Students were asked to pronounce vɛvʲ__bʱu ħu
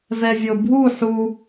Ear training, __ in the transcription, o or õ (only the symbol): o